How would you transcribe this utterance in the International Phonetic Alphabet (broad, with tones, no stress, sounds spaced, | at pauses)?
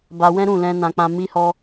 b a˧ w ɛ̃˦ ɾ ũ˦˨ l ɛ̃˧ n ã˦ k͡p ã˦ m i˦ h ɔ˦